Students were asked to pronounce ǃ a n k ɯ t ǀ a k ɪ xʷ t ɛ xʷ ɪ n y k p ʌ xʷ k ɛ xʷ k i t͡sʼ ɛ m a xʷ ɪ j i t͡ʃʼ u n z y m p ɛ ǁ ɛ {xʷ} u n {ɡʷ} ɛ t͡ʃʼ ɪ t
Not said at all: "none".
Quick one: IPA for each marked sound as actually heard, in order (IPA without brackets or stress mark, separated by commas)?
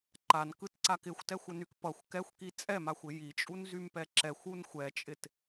xʷ, xʷ